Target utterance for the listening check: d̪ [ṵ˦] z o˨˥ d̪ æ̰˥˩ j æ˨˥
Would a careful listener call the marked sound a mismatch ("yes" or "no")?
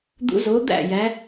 no